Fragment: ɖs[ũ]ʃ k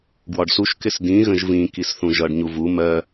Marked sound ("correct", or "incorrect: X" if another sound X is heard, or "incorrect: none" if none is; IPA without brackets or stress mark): incorrect: u